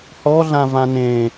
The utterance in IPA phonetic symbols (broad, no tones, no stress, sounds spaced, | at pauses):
h ɔ ɮ ã v ã n ẽ